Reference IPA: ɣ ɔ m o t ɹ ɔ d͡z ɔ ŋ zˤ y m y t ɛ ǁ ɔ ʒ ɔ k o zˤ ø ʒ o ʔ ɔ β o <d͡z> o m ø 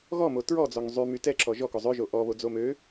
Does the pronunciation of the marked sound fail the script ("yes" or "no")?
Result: no